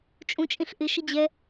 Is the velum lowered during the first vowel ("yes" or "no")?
yes